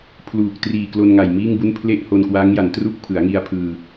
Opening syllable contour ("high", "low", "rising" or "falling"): low